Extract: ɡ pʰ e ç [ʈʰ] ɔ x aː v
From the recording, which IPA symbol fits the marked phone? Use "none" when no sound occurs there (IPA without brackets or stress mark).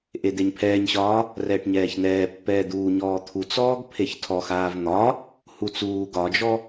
tʰ